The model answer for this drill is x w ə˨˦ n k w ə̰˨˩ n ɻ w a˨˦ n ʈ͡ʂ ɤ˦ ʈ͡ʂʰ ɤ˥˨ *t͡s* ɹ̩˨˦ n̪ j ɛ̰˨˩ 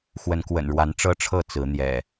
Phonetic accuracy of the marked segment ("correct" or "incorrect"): correct